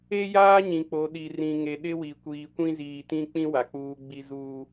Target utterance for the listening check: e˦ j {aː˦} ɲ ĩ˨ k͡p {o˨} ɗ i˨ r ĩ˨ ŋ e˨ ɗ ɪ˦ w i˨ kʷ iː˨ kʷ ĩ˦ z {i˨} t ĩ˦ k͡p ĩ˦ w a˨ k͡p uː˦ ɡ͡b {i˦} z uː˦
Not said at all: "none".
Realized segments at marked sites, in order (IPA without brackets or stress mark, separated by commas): aː˦, o˨, iː˨, i˦